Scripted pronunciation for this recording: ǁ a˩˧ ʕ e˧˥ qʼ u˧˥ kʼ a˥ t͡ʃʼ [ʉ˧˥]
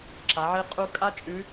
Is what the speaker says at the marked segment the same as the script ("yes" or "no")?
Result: yes